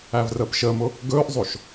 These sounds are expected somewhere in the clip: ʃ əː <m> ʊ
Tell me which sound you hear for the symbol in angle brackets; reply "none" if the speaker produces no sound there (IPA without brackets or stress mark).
m